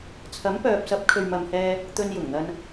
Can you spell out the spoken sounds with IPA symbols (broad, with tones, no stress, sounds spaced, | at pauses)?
t͡sʰ ɐ˨˥ m p œː˨ p̚ s ɐ˨˥ p̚ kʰ ɵ˨ ɥ m ɐ˨ m h ɛː˧ | t̪ ɵ˧ n j ʊ˨˩ ŋ n̪ ɐ˧ n